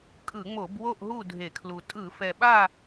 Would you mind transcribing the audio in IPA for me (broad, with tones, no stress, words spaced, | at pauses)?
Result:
kʼɯ˧˩˧ŋ͡mo˧˩˧b wo˥˨ʔɦu˥˨ dʱe˧˩˧kʰlu˨˩ tʼɯ˧˩˧fɛ˨˩ɓa˥˨